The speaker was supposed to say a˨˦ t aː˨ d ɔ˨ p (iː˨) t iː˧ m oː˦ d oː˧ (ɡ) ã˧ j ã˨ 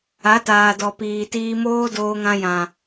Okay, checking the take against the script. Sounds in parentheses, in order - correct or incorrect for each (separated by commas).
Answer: correct, incorrect